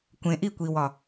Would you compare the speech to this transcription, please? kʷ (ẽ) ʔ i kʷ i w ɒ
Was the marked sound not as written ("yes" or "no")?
no